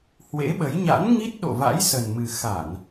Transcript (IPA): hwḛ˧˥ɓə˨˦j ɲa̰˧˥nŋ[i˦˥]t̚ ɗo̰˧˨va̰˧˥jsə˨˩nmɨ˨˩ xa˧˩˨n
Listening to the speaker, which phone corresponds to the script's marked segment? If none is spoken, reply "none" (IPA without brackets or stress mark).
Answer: i˦˥